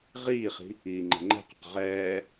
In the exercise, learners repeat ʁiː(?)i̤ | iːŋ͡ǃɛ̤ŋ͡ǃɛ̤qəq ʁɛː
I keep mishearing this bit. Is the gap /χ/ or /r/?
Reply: χ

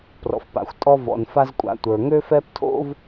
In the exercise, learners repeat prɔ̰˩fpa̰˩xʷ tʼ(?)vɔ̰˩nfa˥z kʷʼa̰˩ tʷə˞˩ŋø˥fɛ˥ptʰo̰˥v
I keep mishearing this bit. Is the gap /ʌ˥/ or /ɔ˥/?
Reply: ɔ˥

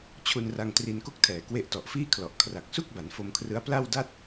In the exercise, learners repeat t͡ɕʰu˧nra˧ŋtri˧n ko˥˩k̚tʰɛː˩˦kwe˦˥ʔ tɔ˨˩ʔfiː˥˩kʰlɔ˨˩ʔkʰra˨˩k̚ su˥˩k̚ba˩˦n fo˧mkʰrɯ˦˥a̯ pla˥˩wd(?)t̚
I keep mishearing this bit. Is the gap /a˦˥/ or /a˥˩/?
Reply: a˥˩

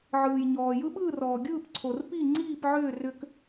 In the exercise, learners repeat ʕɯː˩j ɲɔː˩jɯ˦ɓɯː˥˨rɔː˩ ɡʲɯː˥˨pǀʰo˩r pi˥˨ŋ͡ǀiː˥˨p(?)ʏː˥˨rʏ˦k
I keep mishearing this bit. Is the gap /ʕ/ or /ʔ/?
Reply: ʕ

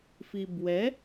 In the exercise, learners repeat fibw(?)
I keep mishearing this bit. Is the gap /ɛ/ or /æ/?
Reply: ɛ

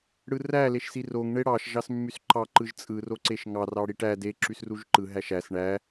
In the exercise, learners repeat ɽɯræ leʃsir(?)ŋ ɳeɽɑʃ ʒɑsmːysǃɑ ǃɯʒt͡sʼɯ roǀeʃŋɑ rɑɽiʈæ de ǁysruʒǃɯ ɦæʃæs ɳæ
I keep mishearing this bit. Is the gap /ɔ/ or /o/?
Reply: o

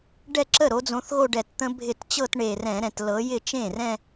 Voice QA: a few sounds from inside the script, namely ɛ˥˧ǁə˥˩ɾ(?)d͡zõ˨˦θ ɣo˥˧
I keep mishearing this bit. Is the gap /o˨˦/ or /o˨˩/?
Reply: o˨˦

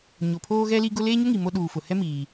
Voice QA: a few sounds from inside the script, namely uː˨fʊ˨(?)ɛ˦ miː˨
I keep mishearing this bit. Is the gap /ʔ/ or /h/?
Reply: h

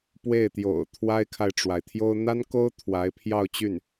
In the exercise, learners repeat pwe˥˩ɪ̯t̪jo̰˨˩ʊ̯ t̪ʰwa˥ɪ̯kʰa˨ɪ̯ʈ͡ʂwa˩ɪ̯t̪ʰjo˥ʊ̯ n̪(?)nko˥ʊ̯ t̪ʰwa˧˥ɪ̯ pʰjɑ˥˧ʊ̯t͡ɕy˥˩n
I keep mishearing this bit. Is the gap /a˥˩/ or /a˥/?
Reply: a˥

